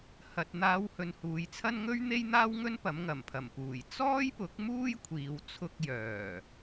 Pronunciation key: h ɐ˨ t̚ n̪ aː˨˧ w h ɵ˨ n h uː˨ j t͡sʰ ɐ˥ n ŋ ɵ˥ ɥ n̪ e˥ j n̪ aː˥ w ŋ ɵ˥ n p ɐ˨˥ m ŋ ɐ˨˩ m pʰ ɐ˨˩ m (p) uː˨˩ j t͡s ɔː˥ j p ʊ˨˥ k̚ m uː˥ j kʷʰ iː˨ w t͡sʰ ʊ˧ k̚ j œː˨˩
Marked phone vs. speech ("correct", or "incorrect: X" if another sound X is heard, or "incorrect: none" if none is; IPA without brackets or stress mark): correct